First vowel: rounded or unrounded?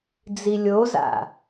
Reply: unrounded